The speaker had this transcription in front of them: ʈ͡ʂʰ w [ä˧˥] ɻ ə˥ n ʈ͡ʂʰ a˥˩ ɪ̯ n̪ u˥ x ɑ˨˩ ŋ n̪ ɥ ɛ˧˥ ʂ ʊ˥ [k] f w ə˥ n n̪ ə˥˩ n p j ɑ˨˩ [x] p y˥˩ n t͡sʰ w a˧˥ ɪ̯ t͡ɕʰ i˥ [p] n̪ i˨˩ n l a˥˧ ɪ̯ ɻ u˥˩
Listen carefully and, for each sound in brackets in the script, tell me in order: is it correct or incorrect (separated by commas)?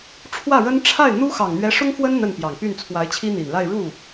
incorrect, incorrect, incorrect, incorrect